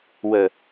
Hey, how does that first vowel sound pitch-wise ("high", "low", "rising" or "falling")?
low